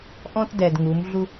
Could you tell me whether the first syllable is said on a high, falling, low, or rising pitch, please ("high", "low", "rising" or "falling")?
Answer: high